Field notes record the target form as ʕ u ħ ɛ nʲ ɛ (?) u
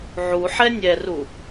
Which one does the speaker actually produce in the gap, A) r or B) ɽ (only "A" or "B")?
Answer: A